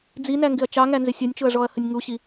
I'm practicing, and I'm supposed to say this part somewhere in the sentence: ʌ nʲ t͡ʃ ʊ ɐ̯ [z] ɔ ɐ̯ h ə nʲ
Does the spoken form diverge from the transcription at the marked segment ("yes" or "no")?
yes